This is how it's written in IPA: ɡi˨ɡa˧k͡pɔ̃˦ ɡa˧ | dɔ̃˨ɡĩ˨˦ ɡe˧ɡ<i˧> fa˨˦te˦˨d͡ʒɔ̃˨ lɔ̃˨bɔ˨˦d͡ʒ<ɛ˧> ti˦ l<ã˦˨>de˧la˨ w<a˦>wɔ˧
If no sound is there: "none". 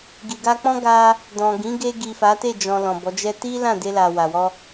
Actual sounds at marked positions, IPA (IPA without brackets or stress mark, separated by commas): i˨, ɛ˦, ã˦˨, a˨